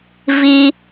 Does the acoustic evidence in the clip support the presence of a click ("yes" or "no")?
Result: no